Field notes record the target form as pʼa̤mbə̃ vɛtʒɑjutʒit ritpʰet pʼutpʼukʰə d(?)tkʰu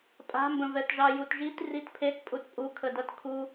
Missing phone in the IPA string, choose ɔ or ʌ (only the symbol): ʌ